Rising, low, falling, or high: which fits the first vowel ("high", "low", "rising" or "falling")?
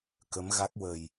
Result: rising